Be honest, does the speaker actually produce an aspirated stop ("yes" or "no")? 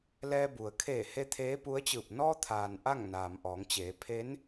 yes